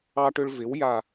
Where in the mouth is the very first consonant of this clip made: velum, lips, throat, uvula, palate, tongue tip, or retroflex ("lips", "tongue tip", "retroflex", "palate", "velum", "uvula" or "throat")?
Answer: retroflex